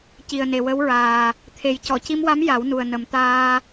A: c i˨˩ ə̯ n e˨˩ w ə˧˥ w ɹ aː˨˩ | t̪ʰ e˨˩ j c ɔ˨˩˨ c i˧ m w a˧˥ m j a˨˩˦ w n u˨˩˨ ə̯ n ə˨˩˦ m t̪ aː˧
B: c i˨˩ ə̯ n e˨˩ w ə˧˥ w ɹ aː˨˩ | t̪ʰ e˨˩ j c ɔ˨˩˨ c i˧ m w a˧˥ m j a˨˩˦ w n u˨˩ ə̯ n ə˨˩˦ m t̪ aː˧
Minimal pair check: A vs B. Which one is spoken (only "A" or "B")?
B